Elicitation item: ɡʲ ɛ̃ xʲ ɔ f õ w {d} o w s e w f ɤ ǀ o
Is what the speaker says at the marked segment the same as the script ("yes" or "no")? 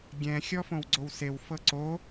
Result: no